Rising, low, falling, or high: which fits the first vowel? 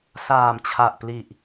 low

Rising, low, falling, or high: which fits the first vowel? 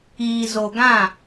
low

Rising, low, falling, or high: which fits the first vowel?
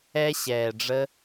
high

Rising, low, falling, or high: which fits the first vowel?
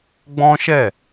high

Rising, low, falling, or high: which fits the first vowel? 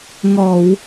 low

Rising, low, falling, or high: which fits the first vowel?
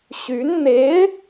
rising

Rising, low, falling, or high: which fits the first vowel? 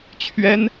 high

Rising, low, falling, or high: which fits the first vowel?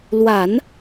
low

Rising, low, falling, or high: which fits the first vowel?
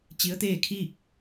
rising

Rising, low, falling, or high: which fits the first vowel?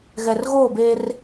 low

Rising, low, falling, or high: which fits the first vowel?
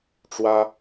high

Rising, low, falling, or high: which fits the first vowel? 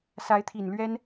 rising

